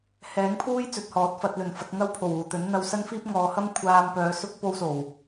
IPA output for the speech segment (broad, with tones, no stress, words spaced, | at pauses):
hɛː˨˥ŋpʰuː˥j t͡sɵ˨t̚hɔː˨˥t̚fɐ˧t̚ lɵ˨˩nfɐ˧t̚ŋɐ˥w pʰo˨˩wuː˨˩ t̪ɵ˨˥nn̪ɐ˧wsɐ˥nfiː˥p̚ ŋɔː˨˧hɐ˥mkʷʰaː˧m pœː˨˧sʊ˥k̚ po˥wso˨˩w